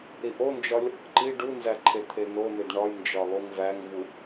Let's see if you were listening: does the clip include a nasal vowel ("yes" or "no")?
no